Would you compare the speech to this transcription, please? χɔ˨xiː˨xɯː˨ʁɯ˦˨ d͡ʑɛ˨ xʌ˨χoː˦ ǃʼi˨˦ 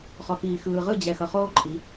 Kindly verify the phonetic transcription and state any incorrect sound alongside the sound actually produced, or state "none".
none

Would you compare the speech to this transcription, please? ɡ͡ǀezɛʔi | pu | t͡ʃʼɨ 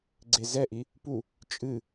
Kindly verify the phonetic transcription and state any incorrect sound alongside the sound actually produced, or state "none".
none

